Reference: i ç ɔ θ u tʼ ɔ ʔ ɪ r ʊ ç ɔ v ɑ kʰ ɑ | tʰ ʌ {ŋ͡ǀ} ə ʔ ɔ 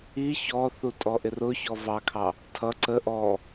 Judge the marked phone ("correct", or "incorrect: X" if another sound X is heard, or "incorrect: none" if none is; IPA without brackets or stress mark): incorrect: ǀ